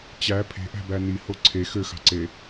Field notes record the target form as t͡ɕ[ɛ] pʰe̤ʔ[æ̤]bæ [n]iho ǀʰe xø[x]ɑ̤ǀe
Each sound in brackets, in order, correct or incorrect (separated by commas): incorrect, correct, correct, correct